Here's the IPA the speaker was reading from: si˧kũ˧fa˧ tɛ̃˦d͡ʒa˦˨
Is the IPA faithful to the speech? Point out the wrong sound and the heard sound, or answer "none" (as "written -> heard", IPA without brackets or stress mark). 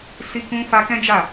t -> k